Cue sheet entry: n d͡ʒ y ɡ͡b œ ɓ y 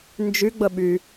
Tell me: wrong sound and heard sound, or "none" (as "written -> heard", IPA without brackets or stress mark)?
œ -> ə